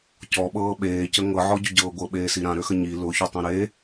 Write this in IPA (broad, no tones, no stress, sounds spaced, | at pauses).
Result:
c ɔ ɓ ɤː ɓ eː c ə ŋ ɤ ʕ ɔ ɟ ʊ ɟ ɤː ɡʷ ɤ ɓ eː s i ɾ ã ɾ ø x ə ɲ i l ʊ ç ø tˤ ĩ ɾ e